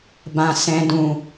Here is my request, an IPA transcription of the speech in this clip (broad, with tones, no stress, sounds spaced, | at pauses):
b ã˧ s ɛ̃˦ d ũ˧